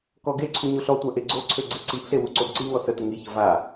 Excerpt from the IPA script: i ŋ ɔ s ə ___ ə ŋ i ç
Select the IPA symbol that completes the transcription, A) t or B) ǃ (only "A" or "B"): A